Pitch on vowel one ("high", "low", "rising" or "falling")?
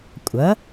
rising